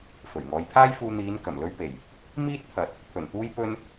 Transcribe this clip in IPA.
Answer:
f ɵ˨˩ ɥ ŋ ɔː˨˧ j pʰ aː˥ j f uː˧ n̪ iː˨˧ n k ɐ˨˩ m l ɵ˧ ɥ p e˨˩ j | m iː˥ t̚ t̪ʰ ɐ˨ t̚ | pʰ ɵ˨˩ n t̪ uː˧ j p ɵ˧ n

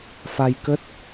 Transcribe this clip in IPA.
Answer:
f a˧ j k ə˦˥ t̚

